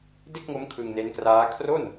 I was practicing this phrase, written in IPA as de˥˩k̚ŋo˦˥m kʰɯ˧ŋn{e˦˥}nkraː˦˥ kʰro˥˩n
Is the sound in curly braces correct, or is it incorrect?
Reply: correct